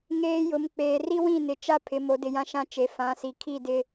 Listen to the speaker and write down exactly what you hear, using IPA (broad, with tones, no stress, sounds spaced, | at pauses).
ŋ eː˨ j ʊ˨ m k͡p eː˨ r i˦ w ĩ˦˨ n ɪ˨ t͡ʃ a˦ pʰ ɪ˨ m o˨ d ɪ˨ j ã˦ ʃ ã˦ t͡ʃ e˨ f ã˨˦ s i˨ kʰ i˦˨ d ɪ˦